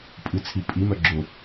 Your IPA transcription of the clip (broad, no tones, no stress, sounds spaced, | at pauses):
pʼ ɨ t͡sʰ i pʼ i m œ ɡ͡ǁ ʊ